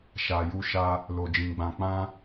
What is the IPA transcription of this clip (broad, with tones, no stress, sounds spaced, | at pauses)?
ʃ a˨ j u˧ ʃ a˧ | l o˨ d͡ʒ ĩ˨ ɡ͡b ã˨ k͡p ã˧